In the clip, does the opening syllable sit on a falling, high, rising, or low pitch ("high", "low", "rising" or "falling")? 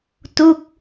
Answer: falling